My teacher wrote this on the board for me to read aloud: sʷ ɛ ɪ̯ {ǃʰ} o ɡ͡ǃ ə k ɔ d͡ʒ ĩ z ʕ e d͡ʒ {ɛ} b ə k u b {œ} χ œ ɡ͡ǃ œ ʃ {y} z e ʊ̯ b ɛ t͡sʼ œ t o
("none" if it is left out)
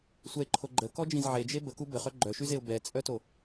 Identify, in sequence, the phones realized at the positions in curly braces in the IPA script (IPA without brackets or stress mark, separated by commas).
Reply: ǃʰ, e, ə, y